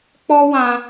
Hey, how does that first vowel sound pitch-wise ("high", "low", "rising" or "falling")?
high